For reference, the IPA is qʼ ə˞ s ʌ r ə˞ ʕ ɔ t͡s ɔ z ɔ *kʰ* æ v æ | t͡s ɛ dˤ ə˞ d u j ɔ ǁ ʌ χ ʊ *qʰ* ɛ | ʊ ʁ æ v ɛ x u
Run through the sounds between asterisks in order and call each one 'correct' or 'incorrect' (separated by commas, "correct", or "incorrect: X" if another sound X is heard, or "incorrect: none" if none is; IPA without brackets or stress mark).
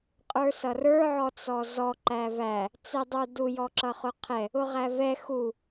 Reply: incorrect: ǃ, correct